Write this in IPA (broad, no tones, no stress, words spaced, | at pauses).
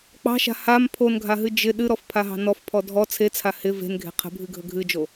k͡pɑ̤ʃa̤ ham pʰonɡʱaɦɨ d͡ʒɪ ɗɨɾɔfpʰaɦɑ̤ nɔfpʰɔ dʱɔ t͡sʰet͡sʰa hɪ ve̤nɡʱe̤ qʰə̤bʱɨɡʱə ɡʱɨd͡ʒo